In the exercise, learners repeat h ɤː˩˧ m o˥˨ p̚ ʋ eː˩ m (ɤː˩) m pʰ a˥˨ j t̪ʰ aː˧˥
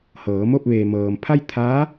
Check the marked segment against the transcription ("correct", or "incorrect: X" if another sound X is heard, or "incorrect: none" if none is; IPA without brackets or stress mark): correct